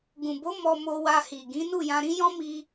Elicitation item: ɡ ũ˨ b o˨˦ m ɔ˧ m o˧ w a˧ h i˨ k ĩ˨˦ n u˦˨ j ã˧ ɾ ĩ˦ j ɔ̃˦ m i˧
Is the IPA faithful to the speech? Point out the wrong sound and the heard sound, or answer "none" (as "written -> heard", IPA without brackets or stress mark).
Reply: k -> ɡ